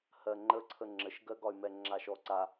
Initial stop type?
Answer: click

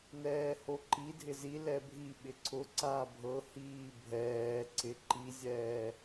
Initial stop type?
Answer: click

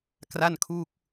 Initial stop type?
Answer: plain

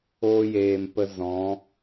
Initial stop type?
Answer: plain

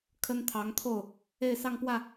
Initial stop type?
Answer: aspirated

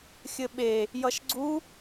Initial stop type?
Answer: implosive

